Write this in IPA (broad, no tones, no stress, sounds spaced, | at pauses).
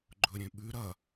ɡ͡ǃ ɵ ɾʲ ẽ ɓ ʉ ɾ ɐ